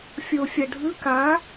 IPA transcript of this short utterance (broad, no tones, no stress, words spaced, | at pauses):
fʲofʲɐɖʱɯ ka